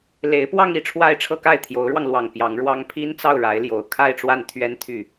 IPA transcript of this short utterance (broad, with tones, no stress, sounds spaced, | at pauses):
l e˧˥ ɪ̯ p w ɑ˥˧ ŋ i˥˧ ʈ͡ʂʰ w a˥˧ ɪ̯ ʈ͡ʂʰ ɤ˥˧ k a˥˩ ɪ̯ t̪ʰ j o˧˥ ʊ̯ ɻ w ɑ˧ ŋ l w ɑ˨˩ ŋ p j ɑ˧˥ ŋ ɻ w ɑ˥ ŋ pʰ i˥ n t͡s ɑ˥˩ ʊ̯ ɻ a˧˥ ɪ̯ l j o˨˩ ʊ̯ kʰ a˥˧ ɪ̯ ʈ͡ʂ w a˥˩ n t̪ʰ ɥ ɛ˥ n t̪ʰ y˥˩